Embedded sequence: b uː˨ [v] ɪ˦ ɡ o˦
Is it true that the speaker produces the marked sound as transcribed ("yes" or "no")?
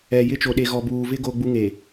yes